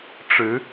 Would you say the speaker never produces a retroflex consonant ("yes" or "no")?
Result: no